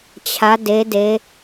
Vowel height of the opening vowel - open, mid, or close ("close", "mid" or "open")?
open